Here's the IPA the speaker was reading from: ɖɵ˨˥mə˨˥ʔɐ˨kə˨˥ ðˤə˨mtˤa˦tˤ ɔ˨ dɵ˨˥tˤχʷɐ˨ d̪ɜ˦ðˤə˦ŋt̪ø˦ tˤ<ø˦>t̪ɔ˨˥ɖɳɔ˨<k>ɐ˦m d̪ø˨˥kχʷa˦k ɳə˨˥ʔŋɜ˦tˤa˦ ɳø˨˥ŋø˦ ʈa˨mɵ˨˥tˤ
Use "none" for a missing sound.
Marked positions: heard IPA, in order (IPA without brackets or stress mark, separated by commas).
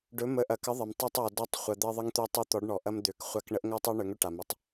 ø˦, ʔ